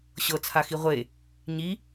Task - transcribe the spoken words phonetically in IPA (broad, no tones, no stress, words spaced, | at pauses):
ɕɤt͡sʰaxi ʁʷe | ɲi